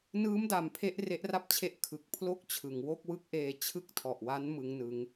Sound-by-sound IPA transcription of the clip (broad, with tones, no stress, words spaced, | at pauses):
nɯː˦˥mda˨˩m pʰe˥˩ʔre˦˥ʔra˥˩p̚t͡ɕʰe˦˥ʔ kʰɯ˨˩k̚pʰlo˦˥k̚t͡ɕʰɯ˩˦ŋ wo˥˩k̚wɯ˦˥k̚ʔeː˧t͡ɕʰɯ˥˩k̚ tʰɔ˨˩ʔwa˦˥n mɯ˦˥ŋnɯ˦˥ŋ